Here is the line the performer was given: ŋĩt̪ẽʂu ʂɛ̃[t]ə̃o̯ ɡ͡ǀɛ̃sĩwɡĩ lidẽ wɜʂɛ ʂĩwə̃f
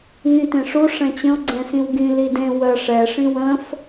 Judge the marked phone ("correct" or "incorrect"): incorrect